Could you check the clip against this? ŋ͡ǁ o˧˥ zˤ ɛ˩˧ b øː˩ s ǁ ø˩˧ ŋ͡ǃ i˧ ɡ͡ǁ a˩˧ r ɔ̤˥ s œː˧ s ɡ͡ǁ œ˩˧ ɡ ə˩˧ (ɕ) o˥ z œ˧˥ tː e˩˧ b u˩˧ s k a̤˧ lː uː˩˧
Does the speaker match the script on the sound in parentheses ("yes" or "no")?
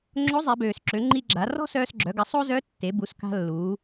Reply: no